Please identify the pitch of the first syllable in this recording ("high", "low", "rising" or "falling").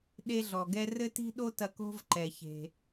high